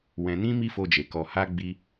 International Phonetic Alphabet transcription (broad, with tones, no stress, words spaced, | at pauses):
wɛ̃˧ nĩ˦mi˦fo˧d͡ʒe˨ kɔ˨ha˧ ɡ͡bi˧